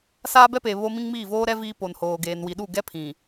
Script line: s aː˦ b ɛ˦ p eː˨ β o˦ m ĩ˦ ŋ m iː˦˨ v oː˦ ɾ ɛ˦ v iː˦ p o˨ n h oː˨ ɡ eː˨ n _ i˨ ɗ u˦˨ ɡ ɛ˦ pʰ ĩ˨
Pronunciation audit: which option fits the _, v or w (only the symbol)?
w